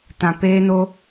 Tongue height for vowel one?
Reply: low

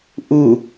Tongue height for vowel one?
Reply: high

